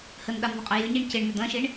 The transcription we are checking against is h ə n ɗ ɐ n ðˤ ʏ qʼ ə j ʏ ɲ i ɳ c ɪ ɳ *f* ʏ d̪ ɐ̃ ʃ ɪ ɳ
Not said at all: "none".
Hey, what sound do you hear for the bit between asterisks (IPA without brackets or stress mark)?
m